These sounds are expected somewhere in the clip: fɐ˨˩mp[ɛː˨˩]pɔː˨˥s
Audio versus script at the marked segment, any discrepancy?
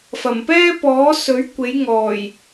yes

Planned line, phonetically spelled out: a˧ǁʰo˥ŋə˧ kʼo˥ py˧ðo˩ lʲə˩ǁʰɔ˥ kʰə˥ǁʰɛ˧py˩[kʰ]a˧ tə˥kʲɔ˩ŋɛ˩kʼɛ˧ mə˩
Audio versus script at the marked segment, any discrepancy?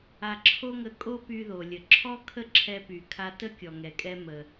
no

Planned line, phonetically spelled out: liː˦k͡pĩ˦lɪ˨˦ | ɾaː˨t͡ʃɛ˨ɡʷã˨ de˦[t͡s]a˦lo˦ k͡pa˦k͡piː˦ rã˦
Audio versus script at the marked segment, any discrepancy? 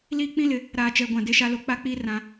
yes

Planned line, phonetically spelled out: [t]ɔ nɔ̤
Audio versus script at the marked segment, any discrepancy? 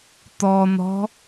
no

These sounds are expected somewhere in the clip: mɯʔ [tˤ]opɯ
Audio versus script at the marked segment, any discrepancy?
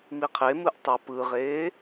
no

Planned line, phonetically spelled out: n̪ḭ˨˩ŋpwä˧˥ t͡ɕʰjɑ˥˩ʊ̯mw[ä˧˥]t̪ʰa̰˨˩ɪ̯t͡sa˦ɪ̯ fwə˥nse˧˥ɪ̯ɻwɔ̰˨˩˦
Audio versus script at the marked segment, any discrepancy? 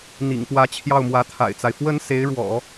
no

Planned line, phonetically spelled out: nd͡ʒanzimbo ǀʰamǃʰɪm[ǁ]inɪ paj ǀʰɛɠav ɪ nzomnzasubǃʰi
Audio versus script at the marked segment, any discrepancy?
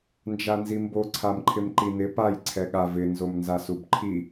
yes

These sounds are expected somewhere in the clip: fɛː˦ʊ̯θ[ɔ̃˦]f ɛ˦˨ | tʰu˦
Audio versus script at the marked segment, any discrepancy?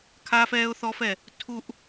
yes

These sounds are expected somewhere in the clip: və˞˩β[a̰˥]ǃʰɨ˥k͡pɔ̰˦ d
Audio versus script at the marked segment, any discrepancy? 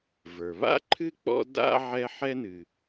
no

